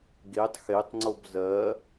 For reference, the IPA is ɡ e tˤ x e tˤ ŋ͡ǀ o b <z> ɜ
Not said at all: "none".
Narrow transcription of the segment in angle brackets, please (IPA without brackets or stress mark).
z